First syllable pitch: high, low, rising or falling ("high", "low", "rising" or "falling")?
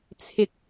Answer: low